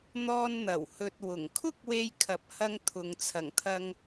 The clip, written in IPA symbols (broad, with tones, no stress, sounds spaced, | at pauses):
n̪ ɔː˧ n n̪ ɐ˨˩ w h ɵ˨ t̚ w ʊ˨˩ ŋ kʰ ʊ˥ k̚ w e˧ j kʰ ɐ˨˥ p̚ h ɐ˧ ŋ t̪ʰ ʊ˨ ŋ t͡sʰ ɐ˨˩ ŋ t̪ʰ ɐ˧ ŋ